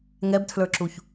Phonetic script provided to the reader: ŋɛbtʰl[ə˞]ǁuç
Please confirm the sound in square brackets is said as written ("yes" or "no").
yes